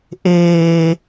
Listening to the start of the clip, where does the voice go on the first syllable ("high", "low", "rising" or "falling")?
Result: low